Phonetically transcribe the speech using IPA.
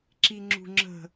ǁiŋ͡ǁṳŋ͡ǁə̤

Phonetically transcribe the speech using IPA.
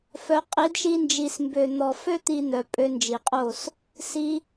fœ˧ qʼi˨˦dʃi˧nd͡ʒi˨smbø˨ n̪ɔ˨fø˦ t̪i˦n̪œ˧ pʼø˧nd͡ʒi˨qʼo˦˨s | si˧

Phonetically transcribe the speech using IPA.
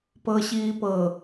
pɤɕiːpɤ

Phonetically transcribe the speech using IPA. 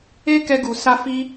e˦kɛ˧ ɡu˨sa˧ fi˧

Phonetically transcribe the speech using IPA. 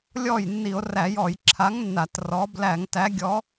lʲɔ˥˩jnːi˧˩˧o̯ræ˧˩˧ jɔ˧˩˧jǁʰa˨˥ŋnːa˧˩˧t rɔ˩˧ blæ˧˩˧ŋtæ˨˥ɡʲɔ˨˥

